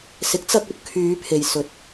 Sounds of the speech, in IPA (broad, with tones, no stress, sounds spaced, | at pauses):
s ɪ˨˥ k̚ t͡s ɐ˧ k̚ ɵ˨ t̚ kʰ yː˨˧ pʰ e˨ j s ɵ˨˥ t̚